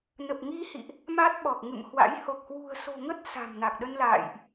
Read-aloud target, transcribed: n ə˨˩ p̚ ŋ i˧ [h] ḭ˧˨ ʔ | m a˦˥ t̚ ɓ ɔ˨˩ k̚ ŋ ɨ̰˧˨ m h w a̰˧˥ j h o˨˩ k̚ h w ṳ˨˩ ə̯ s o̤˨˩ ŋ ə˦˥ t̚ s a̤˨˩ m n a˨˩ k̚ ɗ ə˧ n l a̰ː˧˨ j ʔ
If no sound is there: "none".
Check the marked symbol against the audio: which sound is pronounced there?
h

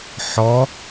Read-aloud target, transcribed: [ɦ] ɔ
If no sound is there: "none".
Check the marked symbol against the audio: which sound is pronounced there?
ħ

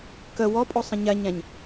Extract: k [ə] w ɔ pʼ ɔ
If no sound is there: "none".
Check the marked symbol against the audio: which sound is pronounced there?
ə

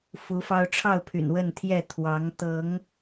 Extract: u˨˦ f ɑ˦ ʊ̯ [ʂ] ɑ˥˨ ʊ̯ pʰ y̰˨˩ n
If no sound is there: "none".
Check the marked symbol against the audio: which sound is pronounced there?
ʈ͡ʂʰ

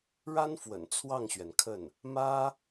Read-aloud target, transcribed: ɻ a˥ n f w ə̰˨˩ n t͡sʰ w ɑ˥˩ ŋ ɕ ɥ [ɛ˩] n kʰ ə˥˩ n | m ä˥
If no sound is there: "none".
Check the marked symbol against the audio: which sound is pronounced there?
ɛ˩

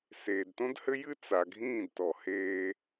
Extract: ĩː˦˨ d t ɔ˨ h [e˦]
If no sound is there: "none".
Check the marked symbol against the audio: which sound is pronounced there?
eː˦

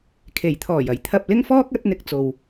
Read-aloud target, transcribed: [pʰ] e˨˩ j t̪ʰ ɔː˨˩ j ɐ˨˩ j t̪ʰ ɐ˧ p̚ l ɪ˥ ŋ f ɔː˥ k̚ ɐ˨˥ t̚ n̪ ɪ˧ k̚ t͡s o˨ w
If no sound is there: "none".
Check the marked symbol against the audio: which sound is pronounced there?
kʰ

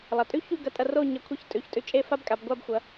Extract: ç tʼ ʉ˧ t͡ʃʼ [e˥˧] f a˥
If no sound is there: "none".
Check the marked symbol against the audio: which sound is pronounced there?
e˥˧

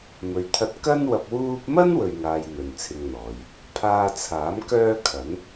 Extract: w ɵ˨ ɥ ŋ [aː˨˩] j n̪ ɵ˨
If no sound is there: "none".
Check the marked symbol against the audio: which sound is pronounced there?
aː˨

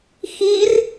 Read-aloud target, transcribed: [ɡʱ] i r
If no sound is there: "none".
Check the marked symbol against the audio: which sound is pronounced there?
x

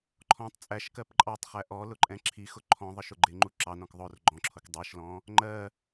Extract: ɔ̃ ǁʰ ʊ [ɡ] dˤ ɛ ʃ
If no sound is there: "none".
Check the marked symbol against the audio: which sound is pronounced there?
k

